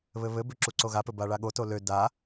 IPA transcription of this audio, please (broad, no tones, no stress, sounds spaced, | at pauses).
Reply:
β ɘ β ɘ b ʏ ǁ u ǀ o ɣ a p ɘ b a ɭ a ɠ o t o l ø d a